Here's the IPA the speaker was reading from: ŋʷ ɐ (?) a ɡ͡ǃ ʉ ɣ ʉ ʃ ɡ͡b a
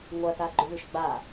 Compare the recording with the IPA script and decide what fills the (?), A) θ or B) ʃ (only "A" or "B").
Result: A